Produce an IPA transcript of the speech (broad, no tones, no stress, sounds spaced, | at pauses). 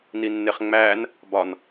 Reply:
n i nː e χ ŋ͡m æː n | b ɒ n